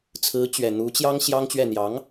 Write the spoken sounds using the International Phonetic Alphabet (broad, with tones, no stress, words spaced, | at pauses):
t͡sʰɹ̩˧˥ t͡ɕɥɛ˨˩n̪u˧˥t͡ɕjɑ˥ŋ ɕjɑ˥ŋt͡ɕɥɛ˥˩ n̪jɑ˧˥ŋ